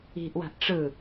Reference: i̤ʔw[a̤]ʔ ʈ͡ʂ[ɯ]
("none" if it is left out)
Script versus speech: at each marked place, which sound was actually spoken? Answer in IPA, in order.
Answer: a̤, ɯ

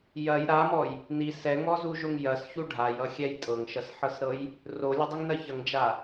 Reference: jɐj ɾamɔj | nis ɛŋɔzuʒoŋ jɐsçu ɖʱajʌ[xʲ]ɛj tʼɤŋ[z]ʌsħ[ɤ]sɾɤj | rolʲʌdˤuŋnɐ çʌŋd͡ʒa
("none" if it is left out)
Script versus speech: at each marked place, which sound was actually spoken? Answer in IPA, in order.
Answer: xʲ, ʃ, ɤ

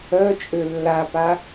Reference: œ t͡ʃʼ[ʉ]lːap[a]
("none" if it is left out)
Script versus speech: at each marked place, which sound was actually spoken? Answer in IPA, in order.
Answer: ø, a

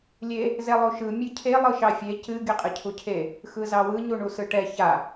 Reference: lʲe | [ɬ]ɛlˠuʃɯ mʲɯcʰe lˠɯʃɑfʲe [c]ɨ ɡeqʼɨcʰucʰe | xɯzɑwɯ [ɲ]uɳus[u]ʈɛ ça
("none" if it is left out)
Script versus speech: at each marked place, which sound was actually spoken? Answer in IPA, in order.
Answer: z, c, ɲ, ɯ

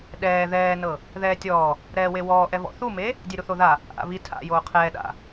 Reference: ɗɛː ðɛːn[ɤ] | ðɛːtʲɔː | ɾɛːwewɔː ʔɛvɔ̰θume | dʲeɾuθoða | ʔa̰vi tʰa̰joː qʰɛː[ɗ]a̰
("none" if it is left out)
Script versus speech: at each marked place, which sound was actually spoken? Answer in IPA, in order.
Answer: ɤ, ɗ

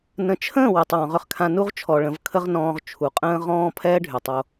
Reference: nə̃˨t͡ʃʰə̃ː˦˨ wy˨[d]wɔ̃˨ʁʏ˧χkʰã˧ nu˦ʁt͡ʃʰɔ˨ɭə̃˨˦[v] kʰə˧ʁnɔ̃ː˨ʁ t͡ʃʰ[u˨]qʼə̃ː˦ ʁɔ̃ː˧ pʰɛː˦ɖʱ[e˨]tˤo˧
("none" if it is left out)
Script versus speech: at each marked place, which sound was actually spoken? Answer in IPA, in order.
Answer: tˤ, v, u˨, y˨

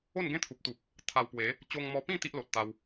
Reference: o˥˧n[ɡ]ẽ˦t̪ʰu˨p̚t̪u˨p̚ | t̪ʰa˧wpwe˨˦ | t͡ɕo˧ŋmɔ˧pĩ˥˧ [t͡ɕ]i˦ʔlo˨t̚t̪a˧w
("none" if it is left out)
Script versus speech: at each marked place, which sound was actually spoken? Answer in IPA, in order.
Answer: ɡ, t̪

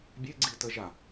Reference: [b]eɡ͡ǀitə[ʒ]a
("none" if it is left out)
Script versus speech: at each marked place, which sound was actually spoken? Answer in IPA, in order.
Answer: bʲ, ʒ

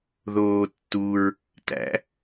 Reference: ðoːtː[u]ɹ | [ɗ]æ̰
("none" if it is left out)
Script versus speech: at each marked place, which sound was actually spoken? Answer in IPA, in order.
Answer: u, t

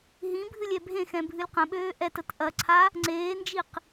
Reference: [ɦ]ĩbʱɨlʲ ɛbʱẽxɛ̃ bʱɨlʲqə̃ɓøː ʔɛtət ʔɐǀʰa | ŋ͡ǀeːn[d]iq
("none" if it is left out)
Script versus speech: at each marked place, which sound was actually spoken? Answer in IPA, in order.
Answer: ɦ, d͡ʒ

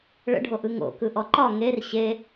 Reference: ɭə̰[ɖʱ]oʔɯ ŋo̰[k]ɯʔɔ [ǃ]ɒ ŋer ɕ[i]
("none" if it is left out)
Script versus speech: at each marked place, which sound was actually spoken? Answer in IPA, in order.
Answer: ɖʱ, k, ǃ, e

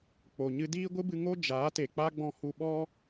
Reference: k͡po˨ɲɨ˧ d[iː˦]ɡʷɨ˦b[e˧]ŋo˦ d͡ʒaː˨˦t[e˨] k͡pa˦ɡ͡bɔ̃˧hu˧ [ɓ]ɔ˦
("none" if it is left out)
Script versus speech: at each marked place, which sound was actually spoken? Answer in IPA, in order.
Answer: iː˦, ɨ˧, e˨, ɓ

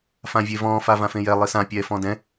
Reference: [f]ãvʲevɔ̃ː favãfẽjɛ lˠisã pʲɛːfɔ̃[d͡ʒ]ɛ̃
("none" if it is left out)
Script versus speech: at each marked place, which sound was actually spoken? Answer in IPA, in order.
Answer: f, d

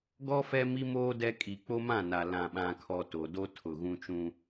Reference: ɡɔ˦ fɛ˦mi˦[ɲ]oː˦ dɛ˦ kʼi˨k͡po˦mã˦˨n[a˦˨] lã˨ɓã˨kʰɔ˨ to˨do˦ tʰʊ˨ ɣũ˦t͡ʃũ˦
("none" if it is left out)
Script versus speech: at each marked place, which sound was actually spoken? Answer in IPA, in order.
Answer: m, a˨

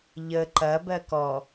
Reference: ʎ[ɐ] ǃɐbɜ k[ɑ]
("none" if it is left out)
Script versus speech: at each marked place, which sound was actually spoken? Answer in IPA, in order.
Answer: ə, ɔ

